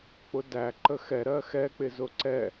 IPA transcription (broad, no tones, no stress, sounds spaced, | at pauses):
k͡p ʊ d æ ǃ ə x ɛ ɾ ɜ x ɛ k͡p ɪ z ʊ ǀ ɛ